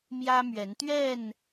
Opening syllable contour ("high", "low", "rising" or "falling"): high